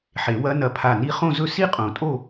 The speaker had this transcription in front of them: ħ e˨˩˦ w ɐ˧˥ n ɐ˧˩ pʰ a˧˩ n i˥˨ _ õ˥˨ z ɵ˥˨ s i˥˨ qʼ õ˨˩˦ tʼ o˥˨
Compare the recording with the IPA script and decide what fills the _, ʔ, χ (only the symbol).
χ